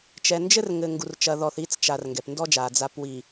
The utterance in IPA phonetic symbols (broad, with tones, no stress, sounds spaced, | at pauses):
t͡ʃ ɛ˨ n d͡ʒ ɘ˦ r ŋ ɘ˨ ŋ ɡ u˨ r t͡ʃ ɐ˨ ð ɔ˨ θ i˨˦ t͡s t͡ʃ a˨ r ŋ ɡ ɛ˨ p n d ɔ˦ d͡ʒ a˨ d͡z a˨ p w i˨